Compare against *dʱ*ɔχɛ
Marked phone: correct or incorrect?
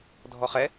correct